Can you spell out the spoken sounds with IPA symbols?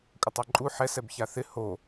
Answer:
kʷʼ ə tˤ ɛ ǃʼ u ħ ɛ s ɛ b ç a θ ɪ h o

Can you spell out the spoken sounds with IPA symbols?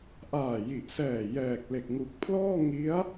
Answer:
ʔ aː˨˩ j i˨˩ ʔ s ɛː˨˩ j ɛː˨˩ k̚ l e˨˩ k̚ ŋ u˨˩ k̚ pʰ l ɔː˥˩ ŋ i˦˥ a̯

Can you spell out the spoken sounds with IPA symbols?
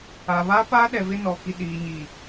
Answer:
a˨ β a˦ p a˦ ɗ ɛ˨ v ɪ˦ n ɔ˨ k i˨ ɗ iː˨ ɲ iː˨

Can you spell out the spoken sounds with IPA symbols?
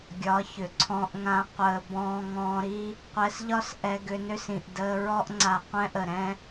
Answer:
ɡʲ ɒ˨˦ ç ʏ˨ ǀʰ ɔ̃˧ ʔ ŋ ã˧ qʷ əː˨ b ɔ̃ː˧ ŋ ɔ̃ː˧ ɾ i˦ | qʷ ɛ˧ s ʎ ɒ˦ s ʔ ɛ˧ ɡ ʏ˧ n ʏ˦ s ĩ˨ ʔ d əː˧ ɹ ɔ˦ ʔ ŋ͡ǀ a˨ qʷ ɛ̃˦ ʔ ə˨ ɾ ɛ̃˧

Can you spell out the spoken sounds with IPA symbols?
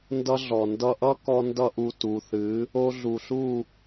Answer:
n d ʌ˦ ɮ ɔ˨ n d ʌ˧ ʔ ʌ˦ k ɔ˧ n d ʌ˧ ʔ u˨ t u˨ θ ɨ˨˦ | o˧ ɮ u˨ ɬ u˦˨

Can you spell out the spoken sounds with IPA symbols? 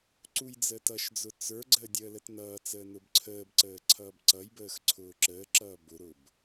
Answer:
ǀ u j d͡z əː t ʌ ʃ d͡z ʊ t͡s ə˞ ɡ͡ǀ əː dʲ əː l ə t n ʌː t͡s əː n ʊ b ǀʰ əː b ǀ əː ǀʰ ʌː b ǀ ʌ j b əː x ǀʰ ʊː ǁ əː ǁ ʌː b ʊ ɾ ʊː b

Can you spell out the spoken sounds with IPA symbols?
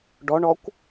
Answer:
ɖ ɔ ɳ ɔ kʷ

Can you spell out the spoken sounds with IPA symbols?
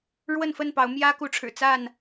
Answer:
ɻ w ə˥˨ n f ə˥˨ n p ɑ˨˦ ʊ̯ m j ä˦ k u˨˦ ʈ͡ʂʰ ɻ̩˨˩ t͡s a˥˨ n

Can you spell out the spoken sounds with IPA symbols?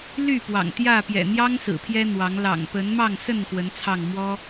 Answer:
l y˥˨ p w ɑ̰˨˩ ŋ t̪ j ä˥˨ p j ɛ̰˨˩ n̪ j ɑ˦ ŋ s ɹ̩˨˩ pʰ j ɛ˦ n̪ w ɑ˨˦ ŋ l ɑ̰˨˩ ŋ p ə˨˦ n m ɑ˥˨ ŋ s ə˥˨ n x w ə˨˦ n t͡sʰ ɑ˥˨ ŋ m w ɔ˦

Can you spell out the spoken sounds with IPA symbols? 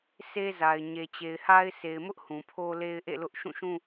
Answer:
s e˦ z a˨ ɪ̯ ɲ e˨ t͡ɕ e˨ ɪ̯ h a˦ ɪ̯ s e˨ ɪ̯ m ʊ˦ ʔ h ũ˨ pʰ o˦ l e˦ ɪ̯ ʔ ḛ˦˨ l ʊ˦ ʔ ʃ ũ˦˨ ʃ ũ˦

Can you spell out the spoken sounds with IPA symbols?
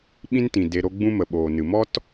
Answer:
ɓ ĩ˧ n t ĩ˨ d e˧ ɾ o˦ ɡ͡b ũ˦ m ə˨ ɓ oː˨ n ɨ˨ m ɔ˦ t

